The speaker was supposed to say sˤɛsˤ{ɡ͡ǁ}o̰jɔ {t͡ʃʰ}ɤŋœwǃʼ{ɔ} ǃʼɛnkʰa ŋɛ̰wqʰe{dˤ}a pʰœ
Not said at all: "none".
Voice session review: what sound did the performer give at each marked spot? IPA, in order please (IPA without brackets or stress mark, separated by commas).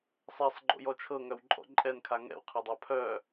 ɡ͡ǃ, t͡ʃʰ, ɔ̰, dˤ